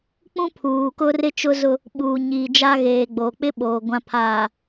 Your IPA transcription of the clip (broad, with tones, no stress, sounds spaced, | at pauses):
k͡p ũ˦ pʰ uː˨ k ʊ˦ r ɪ˦ t͡ʃ ʊ˦ z ʊ˦ | ɓ uː˨ ɲ iː˨ d͡ʒ a˦ ɣ eː˨ ɡ͡b oː˨ k͡p ɪ˦ ɓ oː˨ ɡʷ ã˨ pʰ aː˨